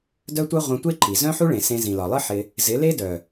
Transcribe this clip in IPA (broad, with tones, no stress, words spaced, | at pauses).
dœ˦tʷœ˦ ʁʷœ̃˧tʷe˦ǃi˨ zœ̃˦ħu˦ɭẽ˨ sẽ˧ zĩ˨lɒ˨lˠɨ˦ ħɪ˧ | zɪ˨˦le˦dœ˨